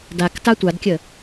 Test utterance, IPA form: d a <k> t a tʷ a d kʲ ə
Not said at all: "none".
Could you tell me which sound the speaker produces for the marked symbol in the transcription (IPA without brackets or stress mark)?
k